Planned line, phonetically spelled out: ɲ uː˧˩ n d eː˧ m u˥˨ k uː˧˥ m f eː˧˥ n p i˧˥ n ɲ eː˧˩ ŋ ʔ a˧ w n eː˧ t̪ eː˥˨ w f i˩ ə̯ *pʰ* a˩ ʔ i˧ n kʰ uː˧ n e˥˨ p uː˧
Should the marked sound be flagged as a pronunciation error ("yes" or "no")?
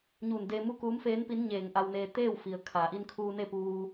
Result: yes